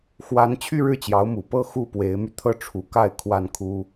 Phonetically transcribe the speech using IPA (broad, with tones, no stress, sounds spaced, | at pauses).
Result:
x w a˥ n t͡ɕʰ y˥˧ ɻ ɻ̩˥˩ t͡ɕ j ɑ˧˥ ʊ̯ m u˨˩ p ɤ˥˧ x u˥˩ p w e˧˥ ɪ̯ m y˧ t̪ʰ ɤ˥˩ ʈ͡ʂʰ u˧˥ k a˥˧ ɪ̯ kʰ w a˥˩ n kʰ u˥